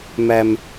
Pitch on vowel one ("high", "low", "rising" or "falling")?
high